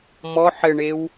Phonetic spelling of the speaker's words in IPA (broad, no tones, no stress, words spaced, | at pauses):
mɔ ħɘɳew